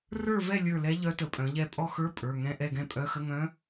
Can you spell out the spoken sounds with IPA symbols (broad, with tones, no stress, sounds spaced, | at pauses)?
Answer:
r ə˞˦˨ v ɛ˦˨ lʲ ə˞˦˨ l ɛ˧˥ ʎ œ˧˥ t ə˩˧˩ pʼ œ̃˩˧ ʎ ɛ˦˨ pʼ ɔ˦˨ x ə˞˧˥˧ pʼ ə˞˩˧˩ ŋ ɛ̃˧˥˧ ʔ ɛ˦˨ ɡ ɛ̃˦˨ pʼ œ˧˥˧ x ə˧˥˧ ŋ œ̃˧˥